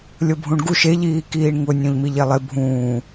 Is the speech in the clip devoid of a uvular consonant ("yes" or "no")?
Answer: yes